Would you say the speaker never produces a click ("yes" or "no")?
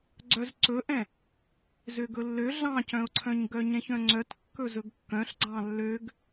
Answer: no